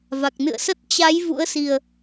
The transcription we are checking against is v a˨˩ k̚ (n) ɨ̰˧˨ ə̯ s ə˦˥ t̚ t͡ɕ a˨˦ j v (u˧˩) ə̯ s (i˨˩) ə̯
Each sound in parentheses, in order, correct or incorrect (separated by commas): correct, incorrect, correct